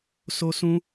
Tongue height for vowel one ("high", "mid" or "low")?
mid